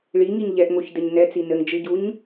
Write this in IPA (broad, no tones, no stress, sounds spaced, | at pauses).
ɭ i ŋ i ɲ ʎ ɛ ʔ ŋ o ç d ɘ ɲ n ɛ t͡s i n ɘ ŋ d͡ʒ ɨ ɟ u ɲ